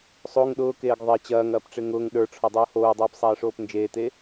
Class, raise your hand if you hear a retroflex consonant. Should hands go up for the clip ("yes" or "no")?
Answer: yes